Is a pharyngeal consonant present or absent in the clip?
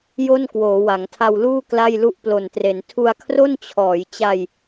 absent